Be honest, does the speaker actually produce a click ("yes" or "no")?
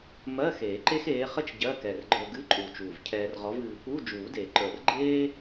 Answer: yes